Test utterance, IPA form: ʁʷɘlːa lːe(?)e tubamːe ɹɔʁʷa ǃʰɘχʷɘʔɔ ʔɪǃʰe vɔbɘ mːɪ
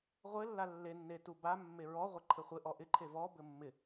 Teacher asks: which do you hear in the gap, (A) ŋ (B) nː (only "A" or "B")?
B